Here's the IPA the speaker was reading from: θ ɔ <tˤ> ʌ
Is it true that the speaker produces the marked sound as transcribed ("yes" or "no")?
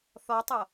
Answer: yes